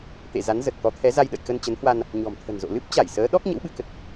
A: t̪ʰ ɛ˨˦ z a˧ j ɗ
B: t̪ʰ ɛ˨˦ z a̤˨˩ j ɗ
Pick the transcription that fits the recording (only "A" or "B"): A